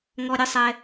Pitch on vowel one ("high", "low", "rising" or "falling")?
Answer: high